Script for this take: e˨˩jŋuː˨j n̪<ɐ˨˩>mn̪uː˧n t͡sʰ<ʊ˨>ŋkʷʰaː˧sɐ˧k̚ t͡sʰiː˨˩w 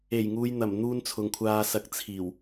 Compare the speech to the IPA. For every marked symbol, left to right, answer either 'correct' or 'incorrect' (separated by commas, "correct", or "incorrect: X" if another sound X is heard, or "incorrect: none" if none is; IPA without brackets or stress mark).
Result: correct, correct